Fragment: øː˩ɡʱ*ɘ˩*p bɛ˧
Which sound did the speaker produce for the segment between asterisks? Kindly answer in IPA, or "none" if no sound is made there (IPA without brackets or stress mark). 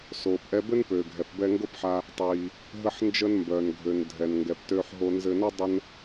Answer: ɛ˩